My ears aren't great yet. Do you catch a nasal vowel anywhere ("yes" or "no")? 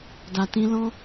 yes